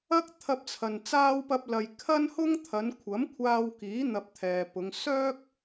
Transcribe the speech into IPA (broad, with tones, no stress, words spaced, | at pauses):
ɐ˥k̚ t̪ʰɐ˧p̚t͡sʰɐ˨n t͡saː˥wpɐ˥p̚lɐ˧j kʰɐ˥nhʊ˥ŋ t̪ʰɐ˨˧nkʷʰɐ˨˥mkʷʰaː˧wkiː˨˥ n̪ɐ˧p̚ t̪ʰɛː˨pʊ˨˧ŋ sœː˥k̚